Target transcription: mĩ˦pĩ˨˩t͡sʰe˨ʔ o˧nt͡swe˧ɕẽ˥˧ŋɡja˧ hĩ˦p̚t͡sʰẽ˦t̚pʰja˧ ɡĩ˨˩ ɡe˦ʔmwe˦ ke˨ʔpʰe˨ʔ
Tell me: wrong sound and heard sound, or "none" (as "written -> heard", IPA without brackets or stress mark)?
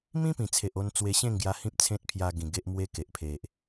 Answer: none